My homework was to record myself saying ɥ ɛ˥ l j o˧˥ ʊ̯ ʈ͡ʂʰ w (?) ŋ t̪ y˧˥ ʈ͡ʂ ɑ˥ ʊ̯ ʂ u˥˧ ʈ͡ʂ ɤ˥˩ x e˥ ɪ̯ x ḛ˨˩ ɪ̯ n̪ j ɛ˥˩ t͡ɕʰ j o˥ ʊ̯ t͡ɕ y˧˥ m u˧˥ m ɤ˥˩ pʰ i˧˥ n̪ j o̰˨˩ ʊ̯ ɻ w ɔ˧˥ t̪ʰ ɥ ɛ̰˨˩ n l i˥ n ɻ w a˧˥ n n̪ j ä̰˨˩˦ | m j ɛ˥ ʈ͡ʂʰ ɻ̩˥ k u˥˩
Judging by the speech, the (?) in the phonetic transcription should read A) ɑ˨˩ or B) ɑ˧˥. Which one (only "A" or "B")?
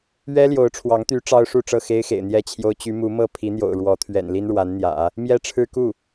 B